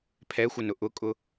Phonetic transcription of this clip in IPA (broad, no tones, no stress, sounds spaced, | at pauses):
pʰ ɛ xʷ ə n ʊ ʔ ʊ kʼ ʊ